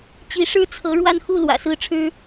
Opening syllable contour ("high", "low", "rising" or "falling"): rising